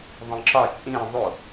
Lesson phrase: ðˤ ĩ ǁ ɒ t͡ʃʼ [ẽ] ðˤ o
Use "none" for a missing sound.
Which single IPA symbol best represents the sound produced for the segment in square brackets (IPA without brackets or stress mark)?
ĩ